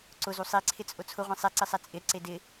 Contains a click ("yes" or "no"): yes